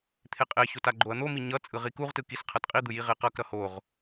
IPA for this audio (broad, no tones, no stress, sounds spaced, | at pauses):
t̪ʰ e qʼ e ç o t a ɡ͡ǃ o ɐ̯ n̪ o m i ɲ ʌ t͡sʼ ɯ ʁ i k u ʁ t ɯ k i s qʰ ʌ t qʼ i d̪ ɯ j i ʁ e q ʌ k ɾ ʌ h o ʁ